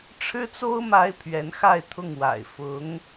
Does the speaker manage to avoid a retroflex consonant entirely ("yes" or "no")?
no